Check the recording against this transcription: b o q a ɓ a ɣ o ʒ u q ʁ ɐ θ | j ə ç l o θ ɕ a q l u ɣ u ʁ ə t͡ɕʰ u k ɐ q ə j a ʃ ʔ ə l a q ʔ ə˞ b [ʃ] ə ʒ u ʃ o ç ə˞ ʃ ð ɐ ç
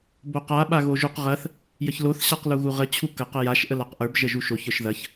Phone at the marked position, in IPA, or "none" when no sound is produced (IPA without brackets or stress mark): ʒ